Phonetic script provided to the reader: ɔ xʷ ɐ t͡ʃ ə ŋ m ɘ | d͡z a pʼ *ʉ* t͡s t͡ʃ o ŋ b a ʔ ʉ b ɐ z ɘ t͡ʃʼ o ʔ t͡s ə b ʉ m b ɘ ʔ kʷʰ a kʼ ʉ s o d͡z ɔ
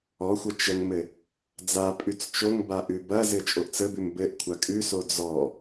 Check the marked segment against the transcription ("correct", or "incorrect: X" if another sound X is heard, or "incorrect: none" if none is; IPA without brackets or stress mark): correct